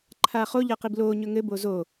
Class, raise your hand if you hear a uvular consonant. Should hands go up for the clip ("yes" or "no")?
yes